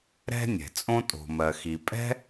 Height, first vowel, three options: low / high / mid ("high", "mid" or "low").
mid